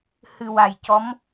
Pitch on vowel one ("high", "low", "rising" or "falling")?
low